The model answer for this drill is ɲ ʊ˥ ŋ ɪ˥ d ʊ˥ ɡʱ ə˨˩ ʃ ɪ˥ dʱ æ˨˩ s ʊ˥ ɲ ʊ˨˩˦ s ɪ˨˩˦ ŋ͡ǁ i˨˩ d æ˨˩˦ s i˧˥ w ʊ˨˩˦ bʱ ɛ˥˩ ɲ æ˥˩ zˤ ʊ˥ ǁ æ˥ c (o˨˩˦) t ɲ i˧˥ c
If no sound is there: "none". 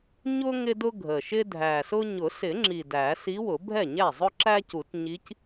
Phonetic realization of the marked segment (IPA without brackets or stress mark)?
u˨˩˦